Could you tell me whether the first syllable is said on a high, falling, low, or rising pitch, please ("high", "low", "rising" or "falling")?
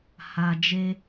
low